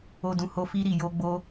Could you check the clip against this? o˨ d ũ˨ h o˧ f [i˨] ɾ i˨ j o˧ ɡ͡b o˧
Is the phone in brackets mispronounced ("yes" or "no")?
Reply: yes